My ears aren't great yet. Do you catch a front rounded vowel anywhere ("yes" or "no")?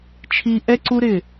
no